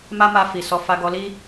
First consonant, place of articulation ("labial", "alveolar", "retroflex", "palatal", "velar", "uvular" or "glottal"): labial